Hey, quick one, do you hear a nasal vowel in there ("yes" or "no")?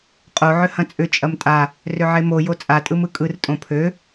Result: yes